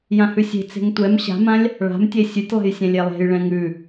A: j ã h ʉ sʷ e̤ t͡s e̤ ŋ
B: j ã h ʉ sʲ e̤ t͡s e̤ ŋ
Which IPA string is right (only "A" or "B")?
B